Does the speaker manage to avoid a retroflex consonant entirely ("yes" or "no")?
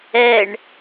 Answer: no